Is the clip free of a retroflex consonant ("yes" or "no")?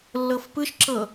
yes